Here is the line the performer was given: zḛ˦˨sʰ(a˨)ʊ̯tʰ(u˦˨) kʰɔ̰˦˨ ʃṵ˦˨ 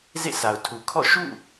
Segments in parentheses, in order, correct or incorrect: correct, incorrect

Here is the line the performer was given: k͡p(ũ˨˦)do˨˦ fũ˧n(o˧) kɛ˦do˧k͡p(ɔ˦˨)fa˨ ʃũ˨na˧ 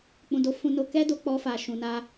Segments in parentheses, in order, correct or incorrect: incorrect, correct, incorrect

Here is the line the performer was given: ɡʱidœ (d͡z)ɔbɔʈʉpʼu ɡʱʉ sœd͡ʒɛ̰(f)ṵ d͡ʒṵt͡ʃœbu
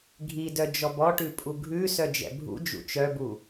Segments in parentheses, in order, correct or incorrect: incorrect, incorrect

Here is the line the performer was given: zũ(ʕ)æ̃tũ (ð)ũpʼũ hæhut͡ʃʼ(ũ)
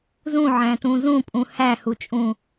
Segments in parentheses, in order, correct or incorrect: correct, incorrect, correct

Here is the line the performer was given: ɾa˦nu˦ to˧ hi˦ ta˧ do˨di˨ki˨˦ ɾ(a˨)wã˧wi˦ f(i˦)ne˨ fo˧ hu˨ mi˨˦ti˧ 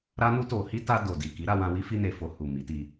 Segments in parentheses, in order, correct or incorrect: incorrect, incorrect

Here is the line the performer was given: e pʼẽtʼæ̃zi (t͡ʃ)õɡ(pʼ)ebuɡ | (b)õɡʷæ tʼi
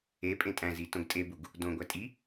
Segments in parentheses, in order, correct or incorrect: incorrect, incorrect, incorrect

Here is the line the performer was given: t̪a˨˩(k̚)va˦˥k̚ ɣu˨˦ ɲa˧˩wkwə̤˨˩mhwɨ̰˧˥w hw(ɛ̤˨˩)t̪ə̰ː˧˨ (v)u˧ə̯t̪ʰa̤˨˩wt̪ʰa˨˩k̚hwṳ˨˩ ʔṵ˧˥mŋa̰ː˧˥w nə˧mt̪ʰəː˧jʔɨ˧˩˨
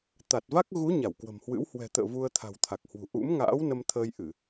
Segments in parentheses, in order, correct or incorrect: incorrect, correct, correct

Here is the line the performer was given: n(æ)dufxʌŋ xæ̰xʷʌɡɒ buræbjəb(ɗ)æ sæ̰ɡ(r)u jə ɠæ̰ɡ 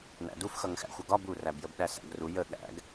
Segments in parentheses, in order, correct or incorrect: incorrect, correct, correct

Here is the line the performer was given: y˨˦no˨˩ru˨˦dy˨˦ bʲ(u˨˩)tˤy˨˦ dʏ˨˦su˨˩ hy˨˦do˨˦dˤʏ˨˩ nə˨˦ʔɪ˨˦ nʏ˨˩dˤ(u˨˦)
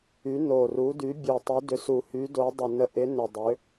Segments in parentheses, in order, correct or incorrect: correct, incorrect

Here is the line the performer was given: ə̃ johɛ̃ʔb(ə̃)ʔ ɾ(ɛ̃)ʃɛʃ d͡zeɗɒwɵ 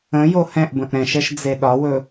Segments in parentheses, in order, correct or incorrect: correct, correct

